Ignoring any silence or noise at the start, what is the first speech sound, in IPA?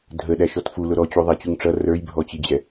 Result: dʱ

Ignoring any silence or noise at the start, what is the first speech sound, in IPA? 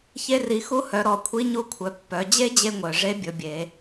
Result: ç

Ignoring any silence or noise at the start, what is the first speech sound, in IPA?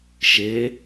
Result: ʃ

